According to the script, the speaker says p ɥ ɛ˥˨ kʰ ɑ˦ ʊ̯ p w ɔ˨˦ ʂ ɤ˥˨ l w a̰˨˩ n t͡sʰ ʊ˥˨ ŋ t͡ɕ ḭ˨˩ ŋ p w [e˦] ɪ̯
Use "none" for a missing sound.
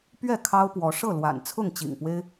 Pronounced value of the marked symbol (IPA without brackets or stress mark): e˦